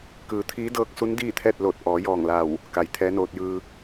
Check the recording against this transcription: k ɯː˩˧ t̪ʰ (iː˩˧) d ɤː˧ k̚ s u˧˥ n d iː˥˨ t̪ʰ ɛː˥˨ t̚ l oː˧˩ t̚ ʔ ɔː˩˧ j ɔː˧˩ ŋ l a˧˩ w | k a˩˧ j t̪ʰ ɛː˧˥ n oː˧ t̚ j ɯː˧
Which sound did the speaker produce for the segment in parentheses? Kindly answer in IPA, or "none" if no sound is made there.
iː˧˥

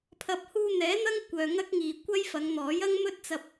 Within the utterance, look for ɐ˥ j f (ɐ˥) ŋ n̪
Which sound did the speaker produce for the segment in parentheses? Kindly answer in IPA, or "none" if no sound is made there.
ɐ˨˧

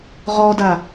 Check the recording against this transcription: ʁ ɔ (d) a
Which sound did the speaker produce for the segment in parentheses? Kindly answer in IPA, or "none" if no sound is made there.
d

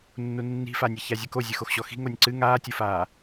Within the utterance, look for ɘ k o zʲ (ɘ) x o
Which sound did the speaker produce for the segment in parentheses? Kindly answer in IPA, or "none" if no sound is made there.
ɘ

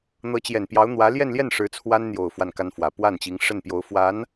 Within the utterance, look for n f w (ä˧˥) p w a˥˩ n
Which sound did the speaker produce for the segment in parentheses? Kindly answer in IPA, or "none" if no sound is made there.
ä˨˩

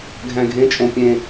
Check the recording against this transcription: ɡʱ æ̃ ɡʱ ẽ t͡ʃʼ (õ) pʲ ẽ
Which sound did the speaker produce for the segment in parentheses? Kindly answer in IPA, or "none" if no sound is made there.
õ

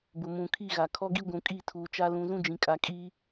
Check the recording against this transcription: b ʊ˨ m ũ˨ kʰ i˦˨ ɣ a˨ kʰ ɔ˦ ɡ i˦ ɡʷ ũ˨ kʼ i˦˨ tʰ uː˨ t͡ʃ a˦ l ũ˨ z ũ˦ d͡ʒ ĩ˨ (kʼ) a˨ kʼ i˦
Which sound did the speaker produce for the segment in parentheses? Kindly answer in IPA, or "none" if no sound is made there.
kʼ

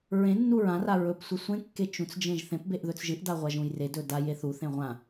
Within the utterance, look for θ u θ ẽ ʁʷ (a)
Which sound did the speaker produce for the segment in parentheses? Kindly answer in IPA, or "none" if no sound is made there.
ã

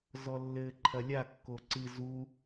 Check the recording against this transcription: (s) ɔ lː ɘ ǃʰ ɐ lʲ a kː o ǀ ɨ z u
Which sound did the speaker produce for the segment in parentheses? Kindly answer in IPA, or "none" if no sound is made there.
z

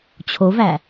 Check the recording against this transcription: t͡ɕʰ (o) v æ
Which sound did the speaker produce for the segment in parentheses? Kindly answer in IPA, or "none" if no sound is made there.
o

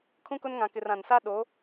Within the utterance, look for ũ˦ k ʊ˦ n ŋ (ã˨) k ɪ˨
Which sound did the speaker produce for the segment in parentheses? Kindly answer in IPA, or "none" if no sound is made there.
ã˨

